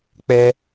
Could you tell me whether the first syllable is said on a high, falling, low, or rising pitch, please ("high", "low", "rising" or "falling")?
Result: high